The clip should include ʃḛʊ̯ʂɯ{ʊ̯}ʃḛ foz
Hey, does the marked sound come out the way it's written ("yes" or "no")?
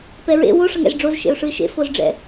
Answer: no